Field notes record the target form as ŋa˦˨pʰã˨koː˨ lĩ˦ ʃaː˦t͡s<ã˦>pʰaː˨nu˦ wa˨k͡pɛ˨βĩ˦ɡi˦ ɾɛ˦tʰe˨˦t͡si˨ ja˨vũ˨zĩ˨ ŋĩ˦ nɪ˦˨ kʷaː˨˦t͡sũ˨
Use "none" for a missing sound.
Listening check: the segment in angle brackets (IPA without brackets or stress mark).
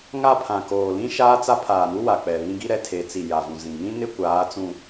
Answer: a˦